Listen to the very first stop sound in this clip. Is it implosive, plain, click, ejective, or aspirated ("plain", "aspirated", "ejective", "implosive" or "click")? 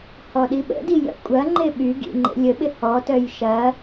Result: implosive